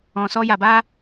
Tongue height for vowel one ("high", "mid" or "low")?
mid